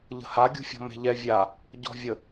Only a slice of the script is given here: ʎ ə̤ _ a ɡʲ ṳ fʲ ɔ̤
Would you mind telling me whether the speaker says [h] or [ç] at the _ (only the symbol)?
h